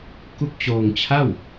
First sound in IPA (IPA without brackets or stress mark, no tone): k